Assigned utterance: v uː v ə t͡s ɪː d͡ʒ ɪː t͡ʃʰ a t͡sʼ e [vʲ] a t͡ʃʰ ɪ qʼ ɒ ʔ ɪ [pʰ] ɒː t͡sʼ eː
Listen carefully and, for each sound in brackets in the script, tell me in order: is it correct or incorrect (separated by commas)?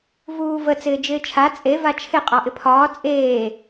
incorrect, correct